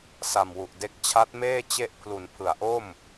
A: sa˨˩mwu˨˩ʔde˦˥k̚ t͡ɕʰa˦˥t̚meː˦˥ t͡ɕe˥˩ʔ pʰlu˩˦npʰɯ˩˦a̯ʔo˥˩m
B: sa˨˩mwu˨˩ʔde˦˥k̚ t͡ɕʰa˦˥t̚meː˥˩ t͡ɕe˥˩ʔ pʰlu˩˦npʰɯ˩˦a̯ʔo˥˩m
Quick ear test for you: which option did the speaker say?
B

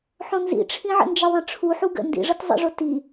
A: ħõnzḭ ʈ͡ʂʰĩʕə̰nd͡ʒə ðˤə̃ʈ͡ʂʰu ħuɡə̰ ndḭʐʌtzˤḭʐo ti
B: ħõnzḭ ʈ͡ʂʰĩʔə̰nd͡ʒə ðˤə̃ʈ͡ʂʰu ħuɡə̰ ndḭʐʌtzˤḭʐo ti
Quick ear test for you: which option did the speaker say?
A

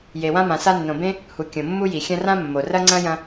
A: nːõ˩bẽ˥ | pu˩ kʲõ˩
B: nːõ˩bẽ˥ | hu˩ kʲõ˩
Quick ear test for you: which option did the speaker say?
B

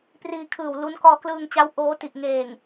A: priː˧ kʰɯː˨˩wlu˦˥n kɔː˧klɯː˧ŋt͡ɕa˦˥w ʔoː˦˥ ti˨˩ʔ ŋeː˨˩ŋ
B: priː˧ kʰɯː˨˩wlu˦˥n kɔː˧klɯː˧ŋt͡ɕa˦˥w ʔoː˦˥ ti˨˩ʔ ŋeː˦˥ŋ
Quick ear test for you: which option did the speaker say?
A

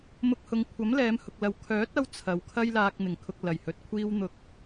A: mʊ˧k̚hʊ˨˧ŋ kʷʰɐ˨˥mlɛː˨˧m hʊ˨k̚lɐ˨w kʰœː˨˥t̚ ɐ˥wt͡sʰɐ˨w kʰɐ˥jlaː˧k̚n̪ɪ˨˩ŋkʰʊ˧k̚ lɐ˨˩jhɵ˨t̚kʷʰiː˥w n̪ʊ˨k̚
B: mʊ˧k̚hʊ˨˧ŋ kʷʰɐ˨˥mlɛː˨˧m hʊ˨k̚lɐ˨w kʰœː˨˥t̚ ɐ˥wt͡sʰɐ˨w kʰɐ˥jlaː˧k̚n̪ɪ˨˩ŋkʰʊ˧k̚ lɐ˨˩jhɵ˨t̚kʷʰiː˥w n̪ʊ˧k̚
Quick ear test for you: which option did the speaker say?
B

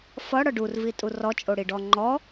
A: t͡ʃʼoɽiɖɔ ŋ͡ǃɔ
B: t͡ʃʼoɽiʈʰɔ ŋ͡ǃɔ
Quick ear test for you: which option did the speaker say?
A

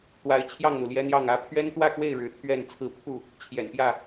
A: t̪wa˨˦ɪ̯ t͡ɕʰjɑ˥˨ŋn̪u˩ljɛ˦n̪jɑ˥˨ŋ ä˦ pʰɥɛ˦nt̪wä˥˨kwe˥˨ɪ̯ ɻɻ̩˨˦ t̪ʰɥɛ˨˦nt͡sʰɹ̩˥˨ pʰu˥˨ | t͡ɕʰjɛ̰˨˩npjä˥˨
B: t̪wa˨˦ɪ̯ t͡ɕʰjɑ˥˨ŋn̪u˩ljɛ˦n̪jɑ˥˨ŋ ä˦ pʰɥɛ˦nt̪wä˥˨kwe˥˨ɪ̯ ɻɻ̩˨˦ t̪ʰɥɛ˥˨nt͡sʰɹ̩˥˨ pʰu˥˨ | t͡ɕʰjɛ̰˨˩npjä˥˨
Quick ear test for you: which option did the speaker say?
B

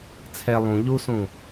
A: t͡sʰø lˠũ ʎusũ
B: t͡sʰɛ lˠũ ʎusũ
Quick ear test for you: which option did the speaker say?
B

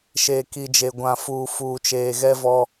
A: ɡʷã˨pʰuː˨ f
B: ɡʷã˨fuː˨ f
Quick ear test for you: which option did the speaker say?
B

